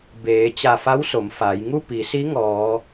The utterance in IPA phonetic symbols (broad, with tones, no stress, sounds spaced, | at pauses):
b eː˩˧ t͡ɕ a˧˩ f a˧˥ w s o˩˧ m f aː˩˧ j ŋ u˥˨ p i˩˧ s i˧˥ ŋ ɔː˩˧